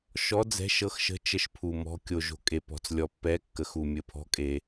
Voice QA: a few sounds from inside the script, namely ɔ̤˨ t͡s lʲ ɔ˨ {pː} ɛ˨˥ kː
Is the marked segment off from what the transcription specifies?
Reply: no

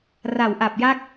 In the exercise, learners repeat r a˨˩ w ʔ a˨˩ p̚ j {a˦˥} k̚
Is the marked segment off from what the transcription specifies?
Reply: no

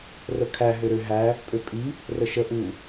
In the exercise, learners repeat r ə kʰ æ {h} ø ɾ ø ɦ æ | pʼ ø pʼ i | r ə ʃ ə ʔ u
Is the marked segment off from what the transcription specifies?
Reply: yes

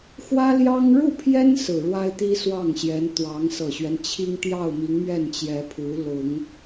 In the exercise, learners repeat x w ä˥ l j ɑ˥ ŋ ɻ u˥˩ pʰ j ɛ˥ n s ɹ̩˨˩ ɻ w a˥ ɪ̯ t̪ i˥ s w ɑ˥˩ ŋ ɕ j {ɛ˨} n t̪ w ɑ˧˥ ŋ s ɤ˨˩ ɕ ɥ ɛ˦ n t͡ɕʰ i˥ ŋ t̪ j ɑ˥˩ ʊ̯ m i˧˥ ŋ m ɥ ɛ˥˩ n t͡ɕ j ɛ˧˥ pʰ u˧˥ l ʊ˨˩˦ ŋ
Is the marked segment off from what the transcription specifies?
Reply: yes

